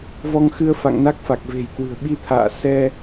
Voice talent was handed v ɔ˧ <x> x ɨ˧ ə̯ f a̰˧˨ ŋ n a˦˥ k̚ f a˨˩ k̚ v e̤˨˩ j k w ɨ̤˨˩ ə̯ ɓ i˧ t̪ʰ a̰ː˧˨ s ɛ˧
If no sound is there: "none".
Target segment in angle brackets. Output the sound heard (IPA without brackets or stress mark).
ŋ